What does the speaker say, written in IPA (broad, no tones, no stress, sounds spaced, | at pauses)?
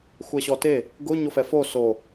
xʷ ɛ ɕ ɔ t e | ɡ ʊ ɲ o f ɛ f o s o